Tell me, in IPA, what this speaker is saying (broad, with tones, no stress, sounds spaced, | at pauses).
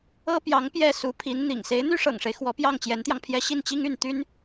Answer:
ɤ˥ p j ɑ˧˥ ŋ p j ɛ˥˩ s u˧˥ pʰ i˧˥ n n̪ ḭ˨˩ ŋ s e˧˥ ɪ̯ n̪ y˥ ʂ ɤ̰˨˩ ŋ ʂ e˦ ɪ̯ x w ɔ˧˥ p j ɑ˥˩ ŋ t͡ɕ j ɛ˧˥ n t̪ j ɑ˧ ŋ pʰ j ɛ˥ ɕ i˥˩ n t͡ɕ i˥ ŋ y˥˩ n t̪ y˥ n